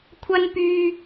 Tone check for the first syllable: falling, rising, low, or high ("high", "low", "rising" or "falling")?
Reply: high